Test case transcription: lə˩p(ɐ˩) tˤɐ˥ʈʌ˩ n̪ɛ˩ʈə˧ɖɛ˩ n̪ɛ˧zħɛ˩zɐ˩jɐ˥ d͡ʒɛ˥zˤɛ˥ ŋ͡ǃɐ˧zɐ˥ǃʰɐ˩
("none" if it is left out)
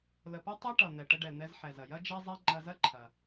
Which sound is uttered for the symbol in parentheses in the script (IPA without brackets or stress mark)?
ɐ˥